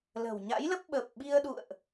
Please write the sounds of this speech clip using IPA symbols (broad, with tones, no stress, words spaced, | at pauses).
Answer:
lə̤˨˩wɲa̰˧˥jlə˦˥p̚ ɓə˨˩p̚ɓi˧ə̯ɗṵ˧˨ə̯ʔ